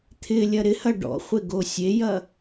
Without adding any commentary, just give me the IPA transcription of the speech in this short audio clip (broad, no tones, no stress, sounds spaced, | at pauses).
t̪ʰ ɪ lʲ ɐ ɾ ɪ h ɐ ɖ ɔ̰ χʷ ɪ ɡ o sʲ e j ɐ